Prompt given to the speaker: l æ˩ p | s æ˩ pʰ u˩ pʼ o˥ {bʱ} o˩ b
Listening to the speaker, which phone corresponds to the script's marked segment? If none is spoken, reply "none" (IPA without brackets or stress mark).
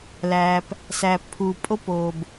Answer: p